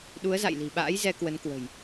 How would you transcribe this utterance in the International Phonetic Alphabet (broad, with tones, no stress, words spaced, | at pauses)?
ɗu˨˦ə̯za̰˧˨jli̤˨˩ɓa̰ː˧˥j zɛ˧kwə˨˦n kwə̤˨˩j